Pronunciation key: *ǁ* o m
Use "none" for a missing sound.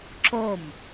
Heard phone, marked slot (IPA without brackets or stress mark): ǁ